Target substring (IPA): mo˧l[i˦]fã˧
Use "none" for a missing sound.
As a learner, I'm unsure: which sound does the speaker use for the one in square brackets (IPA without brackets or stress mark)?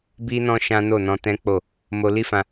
i˦